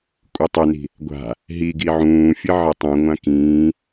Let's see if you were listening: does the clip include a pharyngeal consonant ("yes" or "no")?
yes